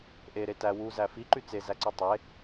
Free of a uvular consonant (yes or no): yes